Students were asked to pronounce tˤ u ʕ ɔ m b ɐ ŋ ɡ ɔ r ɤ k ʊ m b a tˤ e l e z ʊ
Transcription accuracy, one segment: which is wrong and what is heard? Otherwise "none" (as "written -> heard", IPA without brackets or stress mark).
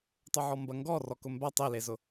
ɤ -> ɔ